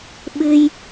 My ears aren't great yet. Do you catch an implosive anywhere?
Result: yes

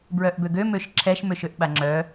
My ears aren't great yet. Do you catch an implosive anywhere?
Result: yes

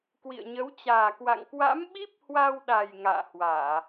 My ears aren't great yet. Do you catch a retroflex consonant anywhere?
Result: no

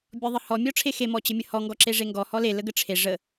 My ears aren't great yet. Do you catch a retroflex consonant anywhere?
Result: yes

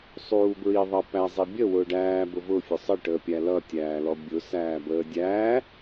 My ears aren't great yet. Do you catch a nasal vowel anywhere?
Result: no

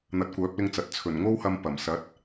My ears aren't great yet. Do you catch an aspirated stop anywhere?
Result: yes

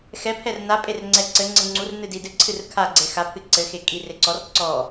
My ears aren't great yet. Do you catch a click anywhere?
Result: yes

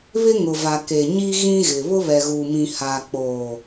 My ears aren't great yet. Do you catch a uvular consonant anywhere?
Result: no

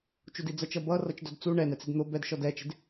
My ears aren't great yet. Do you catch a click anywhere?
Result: no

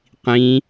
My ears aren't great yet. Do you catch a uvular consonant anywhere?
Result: yes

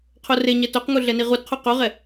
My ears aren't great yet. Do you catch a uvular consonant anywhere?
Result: yes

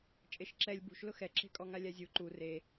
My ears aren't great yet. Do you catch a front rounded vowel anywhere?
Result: no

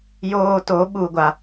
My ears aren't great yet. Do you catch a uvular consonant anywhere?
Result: no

